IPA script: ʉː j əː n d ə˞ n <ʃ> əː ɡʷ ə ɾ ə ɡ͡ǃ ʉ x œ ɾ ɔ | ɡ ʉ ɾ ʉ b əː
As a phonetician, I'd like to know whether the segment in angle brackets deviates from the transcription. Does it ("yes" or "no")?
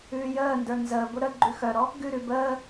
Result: yes